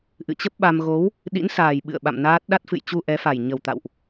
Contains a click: no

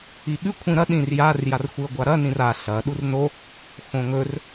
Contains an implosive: yes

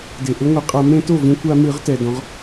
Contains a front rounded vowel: no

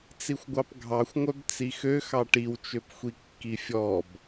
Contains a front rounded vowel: yes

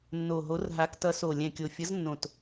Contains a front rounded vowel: no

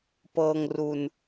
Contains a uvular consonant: no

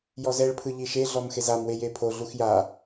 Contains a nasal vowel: no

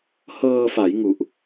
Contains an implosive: no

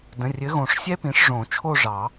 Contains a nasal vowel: yes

